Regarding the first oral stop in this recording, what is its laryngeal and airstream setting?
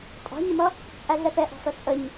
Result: ejective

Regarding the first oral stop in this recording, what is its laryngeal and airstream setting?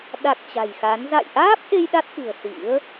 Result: implosive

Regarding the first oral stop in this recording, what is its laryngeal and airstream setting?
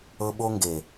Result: implosive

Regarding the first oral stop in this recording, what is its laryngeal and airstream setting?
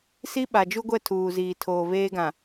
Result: implosive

